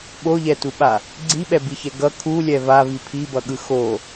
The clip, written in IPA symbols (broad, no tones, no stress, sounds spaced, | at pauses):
ɓ o ʎ ɛ t u ɓ a | ɡ͡ǀ i ɓ ɛ b i ç ɛ ɡ ʌ kʰ u lʲ ɛ v a v i pʰ i b ʌ ɠ ɯ x o